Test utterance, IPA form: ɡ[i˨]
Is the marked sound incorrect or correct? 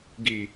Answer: correct